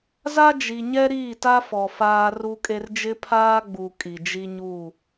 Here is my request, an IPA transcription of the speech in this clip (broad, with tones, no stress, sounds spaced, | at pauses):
z a˦ d͡ʒ i˨ ɲ ɛ˦ ɾ iː˦˨ t a˦ f ɔ˨ f aː˦ r u˦ kʼ e˦ r d͡ʒ ɪ˦ pʰ aː˦ ɡ͡b u˨ kʼ i˨ d͡ʒ i˦ ɲ u˦˨